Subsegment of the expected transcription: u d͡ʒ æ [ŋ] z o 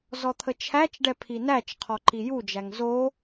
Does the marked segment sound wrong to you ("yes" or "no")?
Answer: no